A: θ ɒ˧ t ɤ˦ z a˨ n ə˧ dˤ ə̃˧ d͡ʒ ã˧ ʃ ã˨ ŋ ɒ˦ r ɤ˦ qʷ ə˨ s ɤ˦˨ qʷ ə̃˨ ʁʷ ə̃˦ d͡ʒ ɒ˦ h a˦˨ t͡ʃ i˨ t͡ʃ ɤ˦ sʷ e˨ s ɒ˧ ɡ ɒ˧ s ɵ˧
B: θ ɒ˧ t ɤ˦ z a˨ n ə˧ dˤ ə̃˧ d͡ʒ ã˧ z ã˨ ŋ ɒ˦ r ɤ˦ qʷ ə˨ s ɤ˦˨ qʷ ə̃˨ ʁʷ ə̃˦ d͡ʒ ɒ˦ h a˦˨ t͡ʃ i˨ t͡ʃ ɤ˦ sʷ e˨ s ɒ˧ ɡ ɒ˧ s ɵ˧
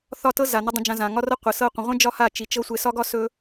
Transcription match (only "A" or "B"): B